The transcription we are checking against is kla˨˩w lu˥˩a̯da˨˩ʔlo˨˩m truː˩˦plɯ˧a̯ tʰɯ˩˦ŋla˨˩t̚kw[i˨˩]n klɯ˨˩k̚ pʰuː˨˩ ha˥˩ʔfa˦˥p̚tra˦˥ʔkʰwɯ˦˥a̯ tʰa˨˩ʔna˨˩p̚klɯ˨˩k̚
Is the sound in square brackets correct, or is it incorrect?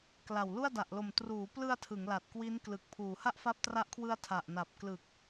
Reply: incorrect